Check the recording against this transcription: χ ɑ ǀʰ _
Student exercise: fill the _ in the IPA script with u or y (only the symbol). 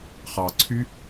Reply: y